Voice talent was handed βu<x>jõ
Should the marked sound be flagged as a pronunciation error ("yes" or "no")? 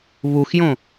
no